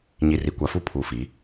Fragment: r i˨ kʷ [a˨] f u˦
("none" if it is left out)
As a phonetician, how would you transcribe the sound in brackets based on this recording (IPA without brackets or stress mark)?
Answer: a˨